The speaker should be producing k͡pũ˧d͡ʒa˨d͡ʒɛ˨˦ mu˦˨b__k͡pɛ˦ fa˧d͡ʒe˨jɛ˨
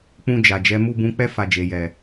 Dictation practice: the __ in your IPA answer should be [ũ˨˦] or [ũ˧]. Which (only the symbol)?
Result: ũ˧